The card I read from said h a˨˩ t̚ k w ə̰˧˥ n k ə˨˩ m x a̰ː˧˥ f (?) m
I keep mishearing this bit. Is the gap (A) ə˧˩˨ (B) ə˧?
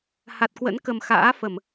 A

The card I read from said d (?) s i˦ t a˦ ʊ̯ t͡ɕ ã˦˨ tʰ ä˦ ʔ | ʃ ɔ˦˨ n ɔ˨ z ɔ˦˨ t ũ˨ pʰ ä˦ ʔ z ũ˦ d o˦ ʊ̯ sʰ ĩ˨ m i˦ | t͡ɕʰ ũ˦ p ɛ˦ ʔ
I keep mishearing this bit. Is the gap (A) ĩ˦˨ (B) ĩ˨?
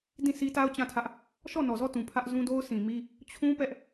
A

